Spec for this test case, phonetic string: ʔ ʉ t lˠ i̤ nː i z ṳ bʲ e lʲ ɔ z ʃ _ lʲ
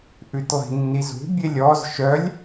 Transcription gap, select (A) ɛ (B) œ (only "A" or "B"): B